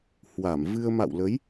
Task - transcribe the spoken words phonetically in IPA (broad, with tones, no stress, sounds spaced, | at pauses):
h w a˧˩ m v ɨ˧ ə̯ m a̰˧˨ w l ə˨˦ j